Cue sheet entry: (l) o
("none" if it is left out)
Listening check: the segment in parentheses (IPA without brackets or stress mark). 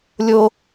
lʲ